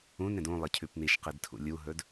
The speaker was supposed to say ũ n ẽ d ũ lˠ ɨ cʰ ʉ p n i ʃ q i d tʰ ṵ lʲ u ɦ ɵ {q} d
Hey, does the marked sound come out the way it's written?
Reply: no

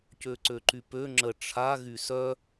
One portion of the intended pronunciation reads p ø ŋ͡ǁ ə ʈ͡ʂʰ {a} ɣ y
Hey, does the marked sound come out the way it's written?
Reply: yes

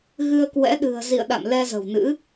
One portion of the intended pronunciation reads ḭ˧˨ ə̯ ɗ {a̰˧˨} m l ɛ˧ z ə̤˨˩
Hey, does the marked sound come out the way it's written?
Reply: yes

